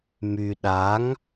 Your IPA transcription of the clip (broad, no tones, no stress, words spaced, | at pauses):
my ɗaŋ